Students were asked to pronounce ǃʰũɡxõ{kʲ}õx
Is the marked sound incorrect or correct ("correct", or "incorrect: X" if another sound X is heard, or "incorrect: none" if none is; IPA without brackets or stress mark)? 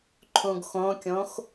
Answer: correct